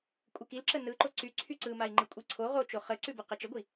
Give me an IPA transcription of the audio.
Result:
kʷʼ ɯ k i l ǁ ə n ɯ ǃ o ǀ y ǀʰ y ǀ ɯ m a i̯ ŋ͡ǃ ɯ kʷʼ i ǀʰ o ʁ o t͡ʃ o χ ə ǀ ʉ b ɯ q ə t͡ʃ ə ɡʷ i

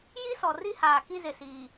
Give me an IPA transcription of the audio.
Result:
j i˦ s ɔ˨ r i˦ h aː˨ k i˦ z ɪ˨ s i˨

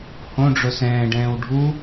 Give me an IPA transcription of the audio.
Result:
h õ ɖ͡ʐ ʊ s ɛ̃ː ɖ ɛ̃ː w ɖʱ u

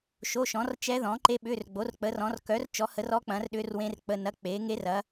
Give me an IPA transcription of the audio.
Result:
ʃ o˧˥˧ ʃ ɔ̃˨˥ r t͡ʃ ɛ˦˥ ð ɔ̃˨˥ ǃ e˦˥ ɓ ʏː˧˥˧ r ɡ͡b o˨˥ r k͡p əː˨˥ r ɔ̃˨˥ r k œ˨˥ r t͡ʃ ɔ˨˥ h ə˨˥ r ɔ˦˥ k͡p ɐ̃˨˥ r ɗ ʏː˦˥ r w ẽ˦˥ r k͡p ə˧˥˧ n ɐ˧˥˧ k͡p eː˨˥ ŋ e˦˥ r ɐ˨˥

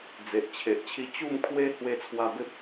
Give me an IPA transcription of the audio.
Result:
d͡z e˨ ʔ t͡ɕʰ e˨ ʔ t͡ɕʰ i˦ t͡ɕ u˥˧ m kʰ w e˦ h w e˧ t͡sʰ w a˧ b e˦ p̚

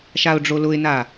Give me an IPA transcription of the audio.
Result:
ʃ a ʊ̯ ɖ͡ʐ o l ʊ ɪ̯ n a

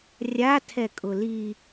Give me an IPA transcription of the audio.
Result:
rʲ a tʰ ɛ kʼ ʊ l i

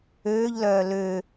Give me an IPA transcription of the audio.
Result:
øː ʎ l œː l ø

